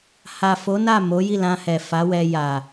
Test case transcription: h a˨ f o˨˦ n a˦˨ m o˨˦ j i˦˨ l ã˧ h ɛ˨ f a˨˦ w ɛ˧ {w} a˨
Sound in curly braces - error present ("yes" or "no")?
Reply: yes